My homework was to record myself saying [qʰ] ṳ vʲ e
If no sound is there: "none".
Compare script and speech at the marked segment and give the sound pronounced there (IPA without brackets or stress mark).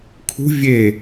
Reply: kʰ